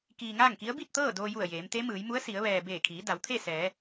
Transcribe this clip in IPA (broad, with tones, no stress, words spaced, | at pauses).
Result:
kiː˧ŋaː˥˨ŋki˧˥ə̯ bi˥˨t̚ t̪ɤː˥˨doː˧ju˧˩ə̯ jeː˩˧mt̪e˧˥mɯː˩˧j mu˧˥ə̯si˩˧ə̯ ʋɛː˩ beː˧˩kʰiː˩˧ da˩˧wt̪ʰe˥˨ sɛː˩˧